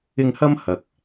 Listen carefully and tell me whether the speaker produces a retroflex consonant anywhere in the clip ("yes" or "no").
no